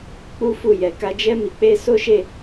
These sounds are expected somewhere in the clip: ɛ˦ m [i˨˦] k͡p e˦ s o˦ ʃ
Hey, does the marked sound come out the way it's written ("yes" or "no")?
no